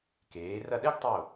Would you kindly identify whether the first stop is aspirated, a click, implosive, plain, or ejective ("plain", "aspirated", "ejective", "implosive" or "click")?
plain